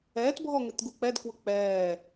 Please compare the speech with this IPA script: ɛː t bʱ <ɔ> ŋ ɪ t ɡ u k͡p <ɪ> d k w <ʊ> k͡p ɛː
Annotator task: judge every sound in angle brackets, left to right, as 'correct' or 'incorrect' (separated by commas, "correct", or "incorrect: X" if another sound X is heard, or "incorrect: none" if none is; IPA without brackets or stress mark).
correct, incorrect: ɛ, correct